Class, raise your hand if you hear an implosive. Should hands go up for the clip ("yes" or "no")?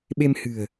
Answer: yes